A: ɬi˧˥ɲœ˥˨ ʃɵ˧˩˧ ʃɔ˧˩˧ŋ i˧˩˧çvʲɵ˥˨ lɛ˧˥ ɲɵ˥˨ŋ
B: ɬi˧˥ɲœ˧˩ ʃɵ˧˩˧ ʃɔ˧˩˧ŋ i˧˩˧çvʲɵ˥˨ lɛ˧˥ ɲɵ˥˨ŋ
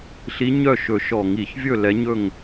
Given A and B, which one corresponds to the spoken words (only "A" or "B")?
A